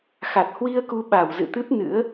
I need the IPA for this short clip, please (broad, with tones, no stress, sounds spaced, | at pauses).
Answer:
x a˨˩ t̚ h w i˧ ə̯ k u˧ ɓ a˧˩ w z ɨ̰˧˨ t̪ ɨ˦˥ p̚ n ɨ̰˧˥ ə̯